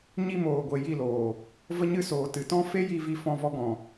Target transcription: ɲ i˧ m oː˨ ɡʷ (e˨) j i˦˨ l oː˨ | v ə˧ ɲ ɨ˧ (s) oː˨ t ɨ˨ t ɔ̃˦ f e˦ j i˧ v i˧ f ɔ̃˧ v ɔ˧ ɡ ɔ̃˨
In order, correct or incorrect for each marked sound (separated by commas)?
correct, correct